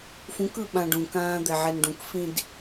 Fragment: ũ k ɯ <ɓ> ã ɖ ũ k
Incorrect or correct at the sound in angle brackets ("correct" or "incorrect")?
correct